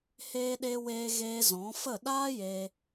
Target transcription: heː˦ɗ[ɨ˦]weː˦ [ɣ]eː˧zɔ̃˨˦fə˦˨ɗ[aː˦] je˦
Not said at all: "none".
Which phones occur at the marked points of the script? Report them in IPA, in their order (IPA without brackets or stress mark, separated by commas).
e˦, ɣ, aː˦